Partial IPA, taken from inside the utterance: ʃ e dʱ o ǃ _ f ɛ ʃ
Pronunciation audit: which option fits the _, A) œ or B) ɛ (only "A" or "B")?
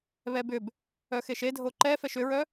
B